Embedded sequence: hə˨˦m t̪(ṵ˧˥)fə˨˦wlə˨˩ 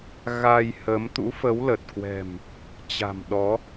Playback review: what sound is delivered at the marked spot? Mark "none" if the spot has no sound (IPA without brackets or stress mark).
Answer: ṵ˧˥